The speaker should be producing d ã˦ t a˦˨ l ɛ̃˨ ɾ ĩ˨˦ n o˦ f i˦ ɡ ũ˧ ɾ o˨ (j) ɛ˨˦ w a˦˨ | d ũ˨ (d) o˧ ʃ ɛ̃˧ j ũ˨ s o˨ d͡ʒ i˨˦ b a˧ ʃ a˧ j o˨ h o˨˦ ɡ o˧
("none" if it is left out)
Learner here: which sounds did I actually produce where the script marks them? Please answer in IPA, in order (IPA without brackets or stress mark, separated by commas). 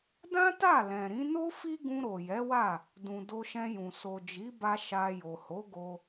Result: j, d